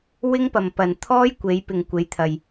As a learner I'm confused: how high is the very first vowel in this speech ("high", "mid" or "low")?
high